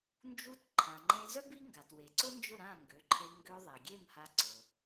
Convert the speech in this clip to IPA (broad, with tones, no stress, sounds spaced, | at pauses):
n d͡ʒ u˧ t ǃʰ ã˩ ŋ͡ǃ ẽ˧ z œ˥ b i˥ ŋ ɡ a˩ t w e˩ ǀ ʊ˥ n d͡ʒ ʊ˥˩ ɾ ã˥˩ ŋ ɡ ø˩˥ ǃʰ e˧ ŋ ɡ ø˧ ðˤ e˩ ɡʲ e˥˩ m h a˧ ǀ ʊ˩